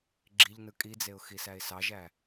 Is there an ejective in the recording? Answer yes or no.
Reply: yes